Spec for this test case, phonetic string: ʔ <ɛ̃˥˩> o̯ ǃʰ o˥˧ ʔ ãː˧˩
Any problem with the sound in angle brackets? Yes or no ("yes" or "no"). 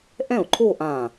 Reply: no